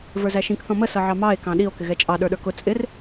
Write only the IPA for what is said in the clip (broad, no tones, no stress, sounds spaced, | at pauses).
v ə˞ z æ ʃ ĩ k θ ɔ̃ m ə s ʌ ʕ ɑ m ɑ e̯ k ɑ̃ ɗ i o̯ k ɪ ɣ ɛ t͡ʃʼ ɑ ɗ ə˞ ɗ ə˞ k ʊ t͡sʼ ɪ r